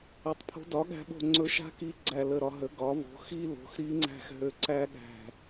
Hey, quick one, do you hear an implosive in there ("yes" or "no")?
yes